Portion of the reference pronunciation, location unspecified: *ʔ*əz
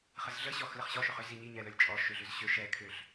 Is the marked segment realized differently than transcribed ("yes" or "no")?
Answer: yes